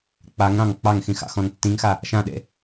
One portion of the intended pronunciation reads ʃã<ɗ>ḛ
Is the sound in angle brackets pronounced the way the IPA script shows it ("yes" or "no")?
yes